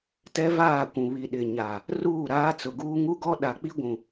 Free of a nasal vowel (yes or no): no